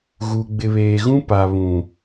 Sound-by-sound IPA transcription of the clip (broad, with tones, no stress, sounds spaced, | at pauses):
ɣ u˨ ɡ͡b ɪ˨ β eː˨ ɣ ũ˦ p a˨ β ũ˨